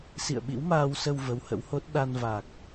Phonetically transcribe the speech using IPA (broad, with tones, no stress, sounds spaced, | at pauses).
s ḭ˧˨ ə̯ ɓ ḭ˧˥ w m aː˧ w s ə˧ w v ə˨˦ w h ə̰˧˥ w h o˦˥ t̚ ɗ a˧ n v a˨˩ k̚